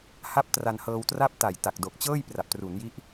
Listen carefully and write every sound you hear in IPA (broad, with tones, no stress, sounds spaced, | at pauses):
h a˥˩ p̚ t r a˧ n h ɤː˧ w t r a˥˩ p̚ t a˨˩ j t a˨˩ k̚ d o˨˩ k̚ t͡ɕ ɤː˥˩ j p r a˨˩ p̚ t r u˩˦ n j i˦˥ ʔ